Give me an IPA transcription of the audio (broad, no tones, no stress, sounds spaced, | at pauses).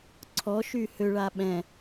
ǀʰ ɔ ʃ y h ø ɭ a ɓ ɛ̃